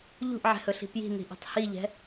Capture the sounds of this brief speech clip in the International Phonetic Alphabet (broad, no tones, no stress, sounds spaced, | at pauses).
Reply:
ʎ ṳ ʔ ʕ ɛ̤ h ɵ ɬ i̤ p j i̤ n i̤ ʔ ɛ̤ tˤ h i ʎ ɛ̤